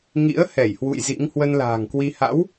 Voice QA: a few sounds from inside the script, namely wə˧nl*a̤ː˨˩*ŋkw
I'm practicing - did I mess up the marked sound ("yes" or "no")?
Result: no